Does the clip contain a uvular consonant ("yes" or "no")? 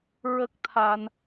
no